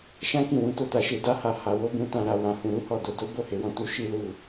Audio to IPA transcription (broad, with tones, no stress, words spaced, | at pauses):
ʃã˦kĩ˦˨wũ˨˦to˦˨ ta˧ʃe˧da˦ha˧ ha˧wo˦bũ˦ tã˧ɾa˧ wã˧hũ˧ ɾu˦hɔ˦˨ do˧ do˦bo˦˨he˨˦wɔ̃˧ tu˧ ʃi˦lu˦˨